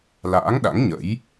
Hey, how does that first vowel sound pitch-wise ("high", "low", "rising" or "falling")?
rising